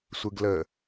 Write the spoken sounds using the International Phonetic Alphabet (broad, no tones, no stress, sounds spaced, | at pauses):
sʷ ɯ ɡ l ə